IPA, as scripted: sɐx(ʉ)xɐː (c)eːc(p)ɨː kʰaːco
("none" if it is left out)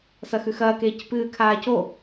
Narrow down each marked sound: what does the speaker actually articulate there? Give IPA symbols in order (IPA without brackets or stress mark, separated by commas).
ʉ, k, p